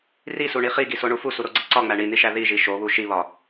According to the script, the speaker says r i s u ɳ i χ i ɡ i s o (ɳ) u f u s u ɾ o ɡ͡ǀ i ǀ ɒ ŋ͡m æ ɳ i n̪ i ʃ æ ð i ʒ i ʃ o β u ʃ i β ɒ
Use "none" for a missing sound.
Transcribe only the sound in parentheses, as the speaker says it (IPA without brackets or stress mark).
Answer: ɳ